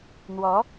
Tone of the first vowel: rising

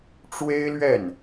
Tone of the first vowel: high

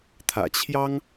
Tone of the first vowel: low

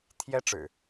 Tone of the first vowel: high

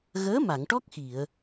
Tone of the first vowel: rising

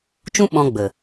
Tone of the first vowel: high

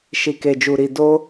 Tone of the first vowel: low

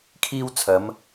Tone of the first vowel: high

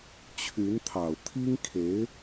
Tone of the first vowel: rising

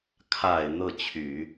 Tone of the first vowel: low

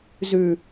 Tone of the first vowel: low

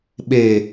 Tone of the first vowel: low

